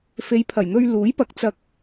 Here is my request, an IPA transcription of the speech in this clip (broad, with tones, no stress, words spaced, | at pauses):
fe˨˧jpʰɐ˨˩jn̪ɵ˧ɥluː˨˥j pɐ˨k̚t͡sɐ˧k̚